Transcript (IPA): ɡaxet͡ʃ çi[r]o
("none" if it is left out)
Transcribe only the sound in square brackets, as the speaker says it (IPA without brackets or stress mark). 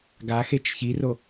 r